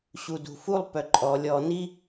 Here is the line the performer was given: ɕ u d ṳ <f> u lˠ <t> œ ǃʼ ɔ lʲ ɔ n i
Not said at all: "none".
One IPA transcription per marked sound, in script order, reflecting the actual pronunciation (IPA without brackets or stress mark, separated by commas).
f, p